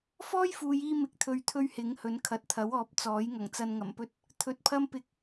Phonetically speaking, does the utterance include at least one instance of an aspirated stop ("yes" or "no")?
yes